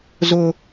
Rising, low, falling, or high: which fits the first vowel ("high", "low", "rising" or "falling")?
high